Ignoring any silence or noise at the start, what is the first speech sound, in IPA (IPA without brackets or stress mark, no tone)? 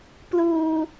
p